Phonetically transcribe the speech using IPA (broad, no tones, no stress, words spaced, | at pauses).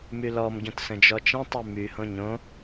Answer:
mylɔm ɟõtsə̃d͡ʒɔt͡ʃə̃ tˤymy hõɲõ